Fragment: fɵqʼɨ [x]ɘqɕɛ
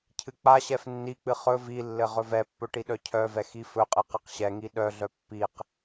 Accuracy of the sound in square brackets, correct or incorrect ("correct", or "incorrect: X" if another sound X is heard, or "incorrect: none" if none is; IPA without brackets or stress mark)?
incorrect: q